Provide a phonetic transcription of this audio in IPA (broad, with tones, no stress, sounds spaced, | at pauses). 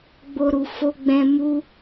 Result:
ɡ͡b o˧ ɾ u˨ f o˧ ɡ͡b ɛ̃˧ m u˦